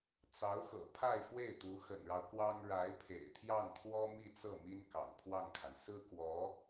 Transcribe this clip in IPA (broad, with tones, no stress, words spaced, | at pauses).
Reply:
t͡sɑ˧˥ʊ̯xɤ̰˨˩ pʰa˥˧ɪ̯fwe˥˩ɪ̯t̪u˧˥ xə̰˨˩nɻɑ˦ʊ̯ kwɑ˥ŋ ɻa˧˥ɪ̯pʰḛ˨˩ɪ̯t̪ʰjɑ˥˩ŋkʰwɔ˥ mi˥˧t͡sɤ˥˩mi˥n kɑ̰˨˩ŋpʰwɑ˥˩ŋkʰa˩n sɹ̩˥kwɔ˧˥